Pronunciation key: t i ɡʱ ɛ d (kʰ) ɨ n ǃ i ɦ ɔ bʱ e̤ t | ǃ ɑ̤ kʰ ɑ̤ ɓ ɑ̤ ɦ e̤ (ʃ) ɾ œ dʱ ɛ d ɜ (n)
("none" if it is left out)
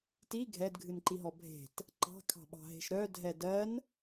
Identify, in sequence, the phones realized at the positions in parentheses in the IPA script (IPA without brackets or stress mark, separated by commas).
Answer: ɡʱ, ʃ, n